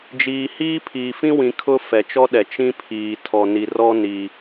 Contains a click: no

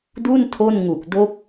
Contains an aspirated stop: yes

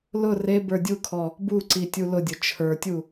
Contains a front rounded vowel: no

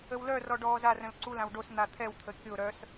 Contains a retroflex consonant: yes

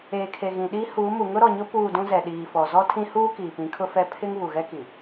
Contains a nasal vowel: yes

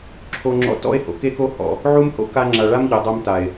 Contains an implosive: no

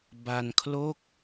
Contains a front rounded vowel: no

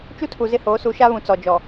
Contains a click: no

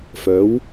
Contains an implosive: no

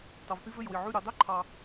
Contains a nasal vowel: no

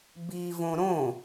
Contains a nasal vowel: yes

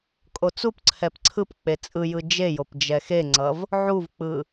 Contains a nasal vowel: no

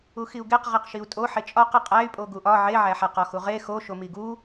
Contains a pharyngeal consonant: yes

